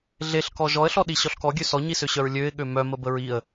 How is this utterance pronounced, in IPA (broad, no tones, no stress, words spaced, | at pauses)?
ɮeɬkɔ ʒɔə̯ɬɔɗi ɕɔɬkɔɡʲø sɔɲisøɕœɹ lʲøɪ̯ ɠømœmə bəɹiə̯